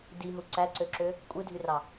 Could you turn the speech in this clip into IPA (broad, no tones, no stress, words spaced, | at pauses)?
diɦu ǀæǀøǁø | kʷʼɯdʱyrɑ